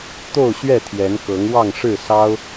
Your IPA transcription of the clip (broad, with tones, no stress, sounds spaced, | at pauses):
t̪ o˥˨ ʊ̯ ɕ ɥ ɛ˥˨ t̪ʰ j ɛ˨˦ n k ɤ˨˦ ŋ w ɑ˥˨ ŋ ʂ ɻ̩˥˨ s ɑ˦ ʊ̯